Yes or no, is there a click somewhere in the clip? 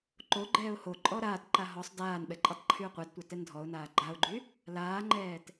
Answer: yes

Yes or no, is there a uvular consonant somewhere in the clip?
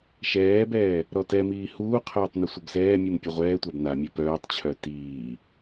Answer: yes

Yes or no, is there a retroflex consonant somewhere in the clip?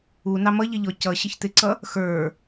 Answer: no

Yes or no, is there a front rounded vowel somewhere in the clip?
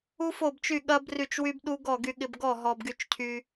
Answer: yes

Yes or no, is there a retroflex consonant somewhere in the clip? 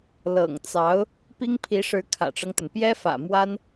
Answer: yes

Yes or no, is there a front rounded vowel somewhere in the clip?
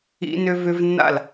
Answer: yes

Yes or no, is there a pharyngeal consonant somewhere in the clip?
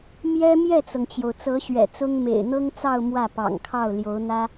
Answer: no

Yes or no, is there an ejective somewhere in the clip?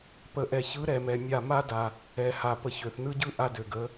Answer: no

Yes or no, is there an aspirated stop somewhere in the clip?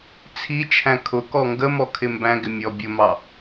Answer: yes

